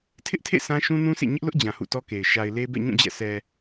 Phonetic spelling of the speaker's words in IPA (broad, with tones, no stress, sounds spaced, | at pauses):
tʰ ɪ˦ ʔ tʰ ḛ˦˨ s ã˦ ʃ ũ˦ n ũ˦ s ḛ˦˨ ɲ ɪ˦ ʔ l ʊ˦ ʔ d͡ʑ ã˨ h ṵ˦˨ t ɔ˦ k e˨ ɪ̯ ʃ a˨ ɪ̯ l e˦ b ɛ̰˦˨ ɲ ũ˦˨ d͡ʑ ɛ̰˦˨ s ɛ˨